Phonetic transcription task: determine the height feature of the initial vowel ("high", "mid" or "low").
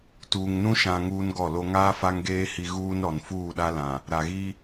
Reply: high